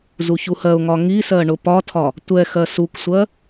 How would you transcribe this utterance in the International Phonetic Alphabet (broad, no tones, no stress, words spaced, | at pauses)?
zuçuhɜʊ̯ŋɒ ŋisɜ ɳʊpɒtʰɒ | tʷɛ xɜsuksʷɜ